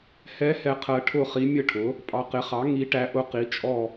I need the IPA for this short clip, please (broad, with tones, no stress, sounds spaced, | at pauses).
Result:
h ɛ˧˥ h ɛ˨ qʰ ɜ˨ ʈʰ ʊ˥˨ χ i˧˥ mʲ ə˥˨ ʈʰ ʊ˩˥ | pʼ ɑ˨ q ɪ˩˥ χ ɑ˩˥ ŋ i˧˥ ʈ æ˧˥ ʔ ʊ˧˥ q i˩˥ t͡ʃʼ ɔ˥˨